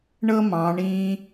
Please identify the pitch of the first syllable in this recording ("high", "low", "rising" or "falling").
high